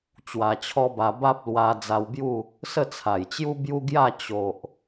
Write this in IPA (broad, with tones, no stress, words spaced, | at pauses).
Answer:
t͡ɕwa˧t͡ɕʰɔ˦ba˧ ba˦p̚ lwa˧ d͡za˧wbju˥˧ | sə˥˧t͡sʰa˨˩jt͡ɕju˦ bju˦ɡja˥˧ t͡ɕo˨ʔ